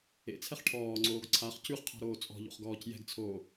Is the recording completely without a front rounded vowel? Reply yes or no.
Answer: yes